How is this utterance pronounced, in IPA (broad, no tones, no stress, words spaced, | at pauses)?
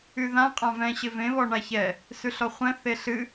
yðã qʼãvɛ̃ ɕɪvẽ βɔɳaçɛ | sʉɬɔχʷɛ̃ θeɬɨ